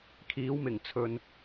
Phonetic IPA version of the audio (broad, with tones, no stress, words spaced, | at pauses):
kʰiː˨˥wmɪ˨˩ŋt͡sʰɵ˨n